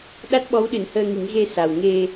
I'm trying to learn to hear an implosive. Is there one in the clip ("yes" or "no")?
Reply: yes